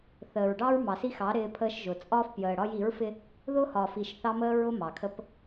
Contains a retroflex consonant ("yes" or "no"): yes